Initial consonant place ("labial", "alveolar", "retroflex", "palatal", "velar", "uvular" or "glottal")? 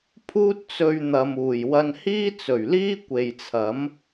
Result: labial